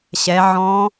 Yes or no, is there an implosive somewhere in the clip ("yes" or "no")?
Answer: no